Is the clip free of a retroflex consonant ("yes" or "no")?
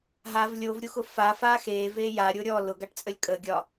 no